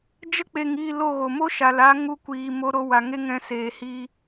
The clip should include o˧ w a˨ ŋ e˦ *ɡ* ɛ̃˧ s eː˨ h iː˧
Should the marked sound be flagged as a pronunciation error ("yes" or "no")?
yes